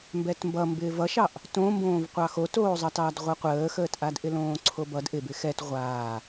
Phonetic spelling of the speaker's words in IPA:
m b ɛ t m b ʌ m b ɪː v ʌ ʃ ɑ ʔ | t õ m b õː v qʷ ɑ x o t oː zˤ ɑ t ɑː d ʁʷ ʌ qʷ əː x əː t ʔ a d ʔ ɪ l õː ǀʰ o b ʌ d ʔ ɪ b ɪ x ɛ t ʁʷ aː

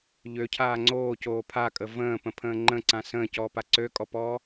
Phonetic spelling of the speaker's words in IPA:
ʎ ø cʰ aː ŋ͡ǀ oː c oː pʰ a kʼ ə v ə̃ː p ə̃ pʰ ə̃ː ŋ͡ǃ ə̃ ǀ ã s ə̃ː c ɔː p a ǀ ø kʼ ɔ p ɔː

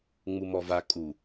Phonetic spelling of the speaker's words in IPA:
ŋ͡m u m ɔ v a kʼ u

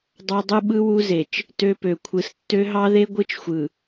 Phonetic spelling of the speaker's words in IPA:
dˤ ɑ˦ dˤ ɯ˦ ɓ ɯ˦ w u˦ z e˨ t͡ʃ | t ø˦ p ø˨ kʷʰ ɯ˨ s tː ø˦ ɦ ɑ˦ ð e˦ ɡʷ ɯ˦ t͡ʃ xʷ ɯ˨

